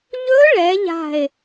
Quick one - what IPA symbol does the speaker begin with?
ʎ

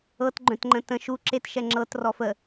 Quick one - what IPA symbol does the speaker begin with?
ɤ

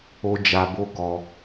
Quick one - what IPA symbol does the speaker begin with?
o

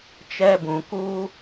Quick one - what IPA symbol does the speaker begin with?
t͡ʃ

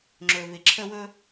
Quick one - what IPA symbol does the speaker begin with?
ŋ͡ǁ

